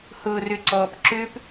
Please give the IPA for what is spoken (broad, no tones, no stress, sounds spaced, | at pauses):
h ʊː r ʏ ǀ ɔː p ǁ ʏː p